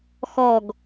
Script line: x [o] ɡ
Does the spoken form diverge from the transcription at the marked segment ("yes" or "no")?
yes